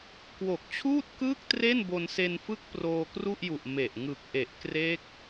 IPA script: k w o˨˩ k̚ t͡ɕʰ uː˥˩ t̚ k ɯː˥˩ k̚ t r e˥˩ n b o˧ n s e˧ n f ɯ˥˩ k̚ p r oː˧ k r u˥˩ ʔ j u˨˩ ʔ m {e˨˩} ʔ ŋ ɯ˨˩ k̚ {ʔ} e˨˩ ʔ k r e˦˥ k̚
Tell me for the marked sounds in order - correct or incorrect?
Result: correct, correct

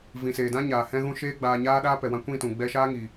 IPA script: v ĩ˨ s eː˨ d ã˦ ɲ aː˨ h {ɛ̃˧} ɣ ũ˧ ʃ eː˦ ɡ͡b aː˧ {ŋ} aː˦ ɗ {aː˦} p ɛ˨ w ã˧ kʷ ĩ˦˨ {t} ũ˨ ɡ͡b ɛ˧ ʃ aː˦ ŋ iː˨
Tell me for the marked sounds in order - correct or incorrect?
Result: correct, incorrect, correct, correct

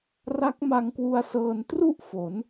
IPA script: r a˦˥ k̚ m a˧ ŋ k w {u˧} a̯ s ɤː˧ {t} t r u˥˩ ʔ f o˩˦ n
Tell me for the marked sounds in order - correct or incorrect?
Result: correct, incorrect

